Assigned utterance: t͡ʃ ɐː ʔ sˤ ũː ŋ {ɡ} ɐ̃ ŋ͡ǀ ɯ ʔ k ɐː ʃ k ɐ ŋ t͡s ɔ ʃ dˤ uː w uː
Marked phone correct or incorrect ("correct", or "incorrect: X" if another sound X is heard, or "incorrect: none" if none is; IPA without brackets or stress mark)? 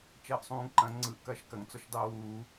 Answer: incorrect: ǃ